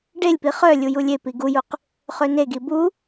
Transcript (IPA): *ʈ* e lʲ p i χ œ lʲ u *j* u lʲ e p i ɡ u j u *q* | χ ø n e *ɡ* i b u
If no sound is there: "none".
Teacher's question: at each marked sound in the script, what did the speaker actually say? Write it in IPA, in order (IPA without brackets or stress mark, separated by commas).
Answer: ɖ, j, q, ɡ